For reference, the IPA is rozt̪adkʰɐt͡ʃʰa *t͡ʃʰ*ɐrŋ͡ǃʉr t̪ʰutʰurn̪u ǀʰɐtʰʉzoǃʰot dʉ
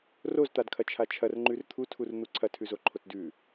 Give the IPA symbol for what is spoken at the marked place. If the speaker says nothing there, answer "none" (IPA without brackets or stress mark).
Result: t͡ʃʰ